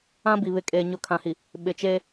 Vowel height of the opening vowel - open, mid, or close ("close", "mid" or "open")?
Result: open